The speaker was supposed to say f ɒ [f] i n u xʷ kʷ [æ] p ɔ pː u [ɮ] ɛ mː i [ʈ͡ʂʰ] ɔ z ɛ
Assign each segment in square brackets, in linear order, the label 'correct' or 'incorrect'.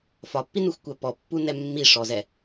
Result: incorrect, correct, incorrect, incorrect

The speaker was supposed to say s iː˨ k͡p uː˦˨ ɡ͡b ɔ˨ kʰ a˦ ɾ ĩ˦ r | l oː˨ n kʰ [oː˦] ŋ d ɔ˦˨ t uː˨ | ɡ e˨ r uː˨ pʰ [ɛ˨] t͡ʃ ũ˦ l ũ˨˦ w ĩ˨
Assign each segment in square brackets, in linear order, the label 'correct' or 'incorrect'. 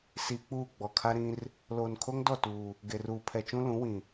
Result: incorrect, correct

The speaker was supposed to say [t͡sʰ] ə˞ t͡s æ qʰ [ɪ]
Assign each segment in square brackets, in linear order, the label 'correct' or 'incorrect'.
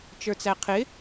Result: incorrect, correct

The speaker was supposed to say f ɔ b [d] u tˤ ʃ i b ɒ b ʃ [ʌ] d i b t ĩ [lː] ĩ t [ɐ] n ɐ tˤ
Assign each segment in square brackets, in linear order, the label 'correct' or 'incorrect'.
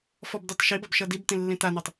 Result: correct, correct, correct, incorrect

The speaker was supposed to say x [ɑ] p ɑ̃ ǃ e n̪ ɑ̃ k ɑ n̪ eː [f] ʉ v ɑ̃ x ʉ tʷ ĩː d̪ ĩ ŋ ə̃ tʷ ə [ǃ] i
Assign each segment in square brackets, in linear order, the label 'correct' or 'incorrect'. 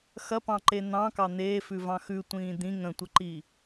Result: incorrect, correct, correct

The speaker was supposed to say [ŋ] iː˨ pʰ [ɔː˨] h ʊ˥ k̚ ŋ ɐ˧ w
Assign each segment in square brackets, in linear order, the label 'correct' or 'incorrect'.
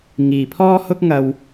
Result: correct, incorrect

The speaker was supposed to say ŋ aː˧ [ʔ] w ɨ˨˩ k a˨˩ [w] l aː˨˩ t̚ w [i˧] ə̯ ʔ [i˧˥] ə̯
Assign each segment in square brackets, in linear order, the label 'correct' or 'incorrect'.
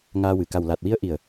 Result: incorrect, correct, incorrect, incorrect

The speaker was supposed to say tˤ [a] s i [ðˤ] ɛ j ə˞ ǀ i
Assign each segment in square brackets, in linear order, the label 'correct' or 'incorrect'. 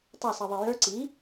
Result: incorrect, correct

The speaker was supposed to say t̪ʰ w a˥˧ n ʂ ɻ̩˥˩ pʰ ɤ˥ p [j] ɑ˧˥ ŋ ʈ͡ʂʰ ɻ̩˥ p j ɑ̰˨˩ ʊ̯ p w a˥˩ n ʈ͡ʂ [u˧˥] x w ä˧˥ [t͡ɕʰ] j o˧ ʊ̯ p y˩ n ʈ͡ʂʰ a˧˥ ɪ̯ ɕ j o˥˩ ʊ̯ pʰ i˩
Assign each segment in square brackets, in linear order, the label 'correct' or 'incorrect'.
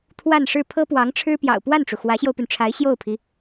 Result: incorrect, incorrect, incorrect

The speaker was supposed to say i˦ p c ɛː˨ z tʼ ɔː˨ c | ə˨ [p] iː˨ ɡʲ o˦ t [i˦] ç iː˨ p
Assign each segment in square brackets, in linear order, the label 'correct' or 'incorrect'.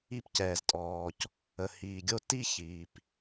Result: incorrect, correct

